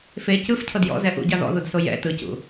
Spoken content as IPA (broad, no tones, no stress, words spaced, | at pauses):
fe cɯf cʰɤdjɔ̰ zɛʔṵɟa ðɔ̰ðudso jɛ̰ tɯcṵ